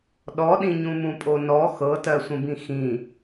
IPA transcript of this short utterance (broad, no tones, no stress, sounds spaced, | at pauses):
ɗ ɔ ɗ ĩ ɲ ũ m ũ pʼ o n ɔ x ɤ t ɜ sʷ ə̃ b ĩ x ĩ